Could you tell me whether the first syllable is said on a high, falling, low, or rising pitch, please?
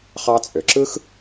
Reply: high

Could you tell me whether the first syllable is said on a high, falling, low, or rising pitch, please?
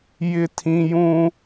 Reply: low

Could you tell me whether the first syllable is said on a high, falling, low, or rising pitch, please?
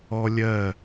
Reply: high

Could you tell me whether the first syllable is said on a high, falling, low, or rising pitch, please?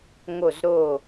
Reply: falling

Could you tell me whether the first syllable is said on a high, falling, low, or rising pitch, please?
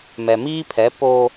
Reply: low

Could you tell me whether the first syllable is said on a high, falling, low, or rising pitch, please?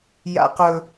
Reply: high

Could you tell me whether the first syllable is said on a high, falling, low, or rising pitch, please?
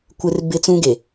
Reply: high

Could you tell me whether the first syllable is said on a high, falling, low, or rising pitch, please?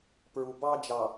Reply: low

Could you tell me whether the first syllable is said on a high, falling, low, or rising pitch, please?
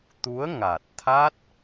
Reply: rising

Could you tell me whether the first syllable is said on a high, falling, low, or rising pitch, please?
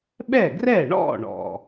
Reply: falling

